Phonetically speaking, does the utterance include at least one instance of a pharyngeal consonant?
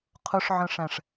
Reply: yes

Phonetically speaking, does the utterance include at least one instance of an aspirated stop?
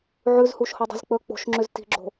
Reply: no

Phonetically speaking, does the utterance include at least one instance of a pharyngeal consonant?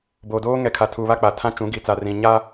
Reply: no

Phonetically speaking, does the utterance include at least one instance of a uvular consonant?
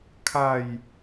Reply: no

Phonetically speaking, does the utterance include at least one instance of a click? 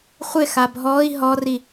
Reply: no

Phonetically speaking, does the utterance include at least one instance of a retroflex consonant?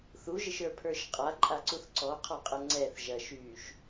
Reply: no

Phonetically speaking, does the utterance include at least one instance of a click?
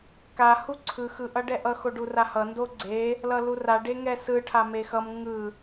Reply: yes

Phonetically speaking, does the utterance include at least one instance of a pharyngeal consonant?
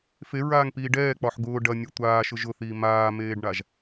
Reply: yes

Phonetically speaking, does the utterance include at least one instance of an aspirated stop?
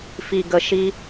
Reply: no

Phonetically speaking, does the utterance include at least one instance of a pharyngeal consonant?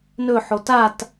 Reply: yes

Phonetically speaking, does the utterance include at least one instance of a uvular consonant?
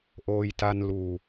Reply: no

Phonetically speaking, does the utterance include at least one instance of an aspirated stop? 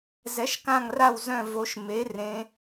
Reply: no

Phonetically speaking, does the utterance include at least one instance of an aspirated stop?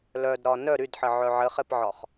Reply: no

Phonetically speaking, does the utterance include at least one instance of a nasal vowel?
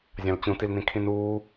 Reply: yes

